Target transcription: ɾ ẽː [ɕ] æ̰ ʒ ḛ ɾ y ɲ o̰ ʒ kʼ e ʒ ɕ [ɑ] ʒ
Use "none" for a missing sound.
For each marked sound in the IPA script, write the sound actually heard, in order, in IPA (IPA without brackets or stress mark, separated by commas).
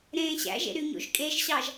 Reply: ɕ, ɑ